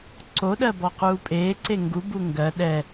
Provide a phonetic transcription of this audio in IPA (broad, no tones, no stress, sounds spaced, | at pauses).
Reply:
ǀ o ɗ ɜ b ɔ q uː pʼ eː ǀ e ŋ ɡ u b u ŋ ɡ ɜ ɗ ɛ